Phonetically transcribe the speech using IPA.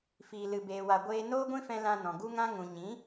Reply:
fiː˧lɨ˧beː˧wa˧ ɡʷeː˧ noː˦ɡʷĩ˦fɛ̃˧ lã˧nɔ̃˨ ɡu˦ŋã˦ŋũ˨ ɲĩ˨˦

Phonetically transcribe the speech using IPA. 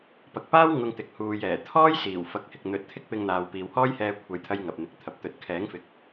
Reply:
pɐ˨k̚paː˥w ŋʊ˧ŋt̪ɪ˨k̚huː˨jɛː˨˩ t̪ʰɔː˥j siː˨˩w fɐ˨˥k̚hɪ˨k̚n̪ɵ˨˥t̚t̪ʰɪ˥k̚ pɪ˧ŋn̪aː˨w piː˨whɔː˥jhɛː˧ kʷʰɐ˨˧jt̪ʰɐ˧j ŋɐ˨p̚n̪ɪ˨˥k̚t̪ʰɐ˨p̚ t̪ɵ˨˥t̚kʰɛː˨˥ŋfɪ˨k̚

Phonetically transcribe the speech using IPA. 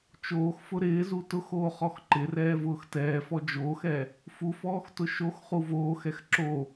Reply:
t͡ʃoːxfʊ ɾɪːzu tʊxoːχɔx ǃɪrɛːvʊːx tɛːfɔ d͡ʒoːxɛ | fufɔːxtʊ ʃoxχu voːxɛx ǁo

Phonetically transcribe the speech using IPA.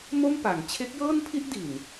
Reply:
mo˥˩mpa˩˦ŋ t͡ɕʰe˦˥k̚jɤː˥˩npʰi˥˩ʔ di˨˩n

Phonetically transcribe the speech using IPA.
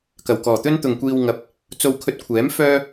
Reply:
kɐ˨˩wkɔː˨˩t̪ɵ˥n t̪ʊ˨ŋkʷiː˧wŋɐ˨˥p̚ | t͡so˧wkʰɵ˧t̚kʷʰɛː˨˥m fœː˥

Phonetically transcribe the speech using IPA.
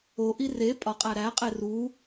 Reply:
oʔi re pʼɒqʼæ ɾæqʼe ru

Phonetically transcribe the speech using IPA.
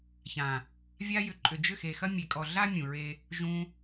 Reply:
çã˨ | vʲa˧jʏ˨ǃʼʏ˨ d͡ʒʏ˦˨xe˨xɐ˦ mʲe˨kʼɔ˨ ɮa˦ mʲũ˨ɹe˧ | ʒũ˧

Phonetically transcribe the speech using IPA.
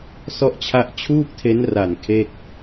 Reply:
sɔ˦˥ʔt͡ɕʰa˦˥ʔt͡ɕʰuː˥˩k̚tʰe˦˥n ra˨˩n kʰe˥˩k̚

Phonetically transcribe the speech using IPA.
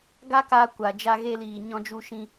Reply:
ɡa˦kaː˧ kʷa˨ d͡ʒa˧ɣe˧liː˨ ɲɔ̃˧d͡ʒu˧ʃĩ˧

